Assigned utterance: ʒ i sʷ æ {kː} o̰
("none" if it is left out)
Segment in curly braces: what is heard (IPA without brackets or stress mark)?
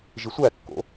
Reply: kː